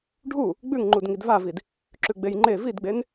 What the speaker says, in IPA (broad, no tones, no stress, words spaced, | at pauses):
ɖʱu | ɡ͡bʉŋ ŋ͡ǃudŋidvavid | ǁʉɡ͡bejŋ͡ǃe vidɡ͡ben